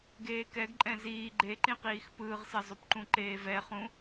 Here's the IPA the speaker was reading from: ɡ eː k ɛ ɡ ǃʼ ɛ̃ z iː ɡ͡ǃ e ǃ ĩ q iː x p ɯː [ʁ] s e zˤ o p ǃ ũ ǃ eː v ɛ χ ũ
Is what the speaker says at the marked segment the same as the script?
yes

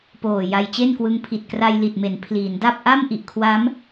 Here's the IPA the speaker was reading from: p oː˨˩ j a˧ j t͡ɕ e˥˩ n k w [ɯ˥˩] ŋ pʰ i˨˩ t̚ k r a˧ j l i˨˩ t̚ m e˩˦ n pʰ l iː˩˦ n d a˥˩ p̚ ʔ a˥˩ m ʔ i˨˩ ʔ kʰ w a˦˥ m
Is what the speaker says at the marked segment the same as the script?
no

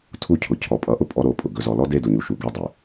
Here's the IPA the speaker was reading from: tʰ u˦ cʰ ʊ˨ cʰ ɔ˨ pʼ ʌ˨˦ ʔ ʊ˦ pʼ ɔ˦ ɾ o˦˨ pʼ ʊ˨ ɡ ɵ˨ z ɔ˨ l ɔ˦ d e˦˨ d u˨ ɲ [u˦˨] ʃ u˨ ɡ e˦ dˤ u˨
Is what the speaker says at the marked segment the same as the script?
no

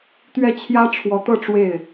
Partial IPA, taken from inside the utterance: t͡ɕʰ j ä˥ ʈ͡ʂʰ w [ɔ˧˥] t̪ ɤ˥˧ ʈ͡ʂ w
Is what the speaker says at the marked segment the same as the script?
yes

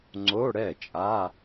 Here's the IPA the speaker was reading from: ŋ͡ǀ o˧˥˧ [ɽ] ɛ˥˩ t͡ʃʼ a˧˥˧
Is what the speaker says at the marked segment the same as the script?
yes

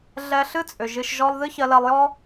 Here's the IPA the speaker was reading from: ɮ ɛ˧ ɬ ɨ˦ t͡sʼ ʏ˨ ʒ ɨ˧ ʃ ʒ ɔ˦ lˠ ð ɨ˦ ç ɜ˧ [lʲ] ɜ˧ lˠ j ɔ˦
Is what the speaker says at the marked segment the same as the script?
no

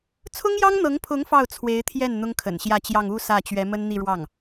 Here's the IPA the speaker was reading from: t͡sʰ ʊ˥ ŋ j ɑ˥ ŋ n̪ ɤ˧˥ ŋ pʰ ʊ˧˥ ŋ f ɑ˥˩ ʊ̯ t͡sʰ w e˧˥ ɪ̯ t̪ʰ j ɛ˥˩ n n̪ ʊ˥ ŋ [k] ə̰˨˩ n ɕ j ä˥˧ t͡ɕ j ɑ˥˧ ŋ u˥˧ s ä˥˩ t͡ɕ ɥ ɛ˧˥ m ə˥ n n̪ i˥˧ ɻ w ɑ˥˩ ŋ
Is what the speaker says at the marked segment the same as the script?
no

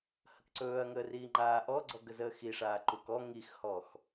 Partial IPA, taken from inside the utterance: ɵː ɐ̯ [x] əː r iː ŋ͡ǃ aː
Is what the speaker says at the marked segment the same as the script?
no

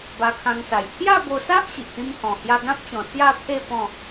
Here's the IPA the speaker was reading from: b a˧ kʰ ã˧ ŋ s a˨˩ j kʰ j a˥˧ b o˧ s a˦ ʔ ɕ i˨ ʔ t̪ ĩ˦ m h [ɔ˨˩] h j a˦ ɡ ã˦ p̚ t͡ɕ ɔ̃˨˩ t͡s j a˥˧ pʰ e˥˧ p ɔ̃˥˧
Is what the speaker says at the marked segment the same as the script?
no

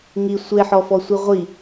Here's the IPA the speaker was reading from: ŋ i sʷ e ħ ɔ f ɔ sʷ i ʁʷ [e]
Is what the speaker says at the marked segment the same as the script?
no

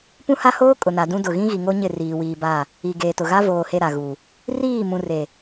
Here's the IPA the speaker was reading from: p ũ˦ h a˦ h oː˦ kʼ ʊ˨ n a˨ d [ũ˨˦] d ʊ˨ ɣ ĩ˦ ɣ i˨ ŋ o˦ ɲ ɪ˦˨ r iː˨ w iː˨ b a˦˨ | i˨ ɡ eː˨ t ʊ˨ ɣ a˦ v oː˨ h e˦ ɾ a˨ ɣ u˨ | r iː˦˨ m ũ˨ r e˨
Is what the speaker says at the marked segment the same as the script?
no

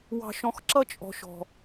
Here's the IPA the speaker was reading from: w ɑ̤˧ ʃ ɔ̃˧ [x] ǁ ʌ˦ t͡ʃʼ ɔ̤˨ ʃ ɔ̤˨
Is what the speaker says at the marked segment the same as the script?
yes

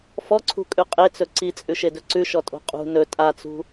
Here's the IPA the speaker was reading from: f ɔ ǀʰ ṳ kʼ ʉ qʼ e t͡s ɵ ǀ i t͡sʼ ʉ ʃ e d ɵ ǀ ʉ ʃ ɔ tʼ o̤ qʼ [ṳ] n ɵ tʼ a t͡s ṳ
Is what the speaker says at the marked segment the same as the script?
yes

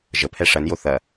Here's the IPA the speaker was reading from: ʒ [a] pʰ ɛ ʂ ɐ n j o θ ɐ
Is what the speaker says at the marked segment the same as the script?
no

